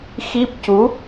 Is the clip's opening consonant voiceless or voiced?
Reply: voiceless